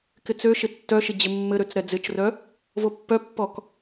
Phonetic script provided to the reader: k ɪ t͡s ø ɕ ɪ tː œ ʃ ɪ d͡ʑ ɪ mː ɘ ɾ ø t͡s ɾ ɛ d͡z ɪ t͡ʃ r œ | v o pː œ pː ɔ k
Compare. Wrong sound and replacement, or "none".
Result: ɕ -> ʃ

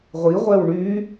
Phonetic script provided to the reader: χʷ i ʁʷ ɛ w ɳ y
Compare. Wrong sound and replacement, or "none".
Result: χʷ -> ʁʷ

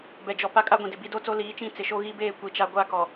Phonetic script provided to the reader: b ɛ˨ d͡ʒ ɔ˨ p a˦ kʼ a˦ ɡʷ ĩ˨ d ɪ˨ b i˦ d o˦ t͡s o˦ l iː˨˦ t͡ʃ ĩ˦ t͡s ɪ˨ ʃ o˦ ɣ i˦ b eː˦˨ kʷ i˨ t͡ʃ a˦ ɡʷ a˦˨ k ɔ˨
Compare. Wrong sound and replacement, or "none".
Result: none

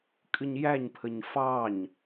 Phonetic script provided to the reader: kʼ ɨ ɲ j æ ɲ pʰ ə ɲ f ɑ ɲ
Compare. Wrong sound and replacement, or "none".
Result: none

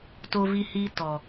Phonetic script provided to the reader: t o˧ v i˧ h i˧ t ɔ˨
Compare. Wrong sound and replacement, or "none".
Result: none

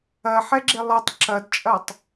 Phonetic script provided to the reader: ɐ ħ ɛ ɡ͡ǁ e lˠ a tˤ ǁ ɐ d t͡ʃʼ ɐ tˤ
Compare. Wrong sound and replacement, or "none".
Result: a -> ɐ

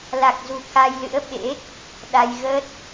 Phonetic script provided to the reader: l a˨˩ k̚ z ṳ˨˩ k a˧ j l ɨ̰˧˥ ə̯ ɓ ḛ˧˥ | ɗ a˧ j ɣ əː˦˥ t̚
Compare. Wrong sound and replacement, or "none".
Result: none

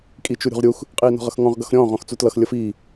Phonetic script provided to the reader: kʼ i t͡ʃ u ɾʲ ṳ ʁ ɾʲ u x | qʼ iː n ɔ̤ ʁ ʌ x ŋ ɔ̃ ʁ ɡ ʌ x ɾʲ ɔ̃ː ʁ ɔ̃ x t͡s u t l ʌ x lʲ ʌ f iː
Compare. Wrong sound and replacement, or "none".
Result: none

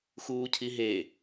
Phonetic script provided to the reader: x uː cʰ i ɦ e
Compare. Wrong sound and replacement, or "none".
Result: none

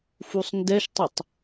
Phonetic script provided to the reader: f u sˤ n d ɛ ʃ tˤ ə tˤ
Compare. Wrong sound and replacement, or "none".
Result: none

